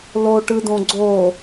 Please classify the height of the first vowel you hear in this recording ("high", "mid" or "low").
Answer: mid